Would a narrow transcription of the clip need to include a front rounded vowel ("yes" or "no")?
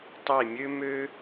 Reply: yes